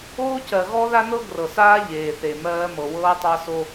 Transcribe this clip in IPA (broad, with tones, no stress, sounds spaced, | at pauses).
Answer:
oː˦ c ɜ˨ ɣ ɔ˦ ð a˦ n ɤ˦ ɡ r ɤ˨ s aː˦ ʎ eː˨ θ e˨ m ɜː˦ m ɤ˨ w ɤː˦ tˤ ɑ˦ s o˦